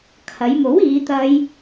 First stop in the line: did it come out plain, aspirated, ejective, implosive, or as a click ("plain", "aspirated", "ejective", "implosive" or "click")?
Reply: aspirated